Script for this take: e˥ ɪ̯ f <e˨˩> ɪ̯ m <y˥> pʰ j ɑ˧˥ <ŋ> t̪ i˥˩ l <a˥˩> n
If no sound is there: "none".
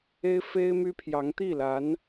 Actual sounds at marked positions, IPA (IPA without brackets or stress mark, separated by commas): e˥, y˥, ŋ, a˧˥